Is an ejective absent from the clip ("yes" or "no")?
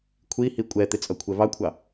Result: no